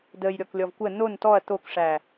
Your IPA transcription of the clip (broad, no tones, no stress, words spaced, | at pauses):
dəj ɾʲɔklʲɔvkʷə non tɔɐ̯ t̪okʂæ